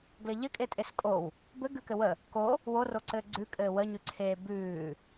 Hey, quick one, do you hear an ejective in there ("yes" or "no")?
yes